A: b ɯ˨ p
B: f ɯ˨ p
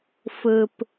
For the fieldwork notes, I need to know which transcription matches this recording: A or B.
B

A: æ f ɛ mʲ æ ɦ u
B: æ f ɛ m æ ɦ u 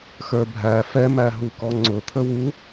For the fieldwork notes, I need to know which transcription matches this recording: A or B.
B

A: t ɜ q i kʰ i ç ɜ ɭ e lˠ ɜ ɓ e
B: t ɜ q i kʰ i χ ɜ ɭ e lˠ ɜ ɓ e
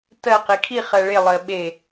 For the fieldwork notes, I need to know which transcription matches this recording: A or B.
B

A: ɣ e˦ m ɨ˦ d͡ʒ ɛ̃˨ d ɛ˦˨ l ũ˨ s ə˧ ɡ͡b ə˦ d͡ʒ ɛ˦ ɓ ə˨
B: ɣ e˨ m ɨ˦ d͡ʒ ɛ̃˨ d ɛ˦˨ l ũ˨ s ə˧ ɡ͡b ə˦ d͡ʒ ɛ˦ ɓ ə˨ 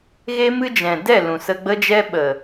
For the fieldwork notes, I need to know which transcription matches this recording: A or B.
A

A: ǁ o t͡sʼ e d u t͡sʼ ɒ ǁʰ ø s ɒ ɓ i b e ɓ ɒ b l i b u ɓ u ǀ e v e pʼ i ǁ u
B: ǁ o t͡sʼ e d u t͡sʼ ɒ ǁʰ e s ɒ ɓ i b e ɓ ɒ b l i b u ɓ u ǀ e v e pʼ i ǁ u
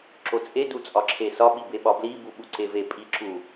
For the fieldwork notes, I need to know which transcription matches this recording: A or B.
B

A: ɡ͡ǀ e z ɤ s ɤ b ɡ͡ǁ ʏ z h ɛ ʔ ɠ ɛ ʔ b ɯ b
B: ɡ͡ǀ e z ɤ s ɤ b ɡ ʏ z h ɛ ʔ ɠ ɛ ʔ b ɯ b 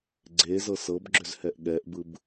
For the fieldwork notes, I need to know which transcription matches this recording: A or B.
A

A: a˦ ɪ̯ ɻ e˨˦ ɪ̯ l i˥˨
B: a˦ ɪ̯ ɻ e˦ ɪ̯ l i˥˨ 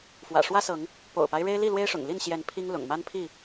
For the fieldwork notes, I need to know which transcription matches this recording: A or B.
B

